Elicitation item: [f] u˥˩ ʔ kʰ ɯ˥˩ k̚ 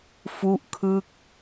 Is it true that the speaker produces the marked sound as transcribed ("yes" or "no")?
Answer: yes